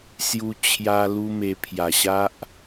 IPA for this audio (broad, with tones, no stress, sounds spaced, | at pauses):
s j u˦ t͡ɕʰ j a˦ l u˦ m e˧ pʰ j a˨˩ ɕ a˦ ʔ